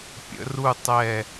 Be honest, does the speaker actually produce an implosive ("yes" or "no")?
no